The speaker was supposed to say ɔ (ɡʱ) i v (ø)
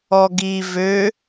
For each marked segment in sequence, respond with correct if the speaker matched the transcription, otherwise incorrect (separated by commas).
incorrect, correct